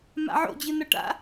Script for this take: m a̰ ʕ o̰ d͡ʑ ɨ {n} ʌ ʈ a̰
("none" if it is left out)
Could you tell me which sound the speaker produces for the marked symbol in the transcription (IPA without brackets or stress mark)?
n